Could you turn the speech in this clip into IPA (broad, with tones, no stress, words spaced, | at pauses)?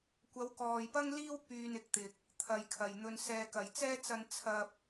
kʷɐ˨˧wkɔː˨jpɐ˥ŋliː˥w pyː˧nɪ˨˥k̚t̪ɪ˨k̚ | t̪ʰɐ˨jkʰɐ˨˩jn̪ɵ˧n sɛː˨kɐ˨˩jt͡sɛː˥t͡sɐ˧n t͡sʰɐ˧p̚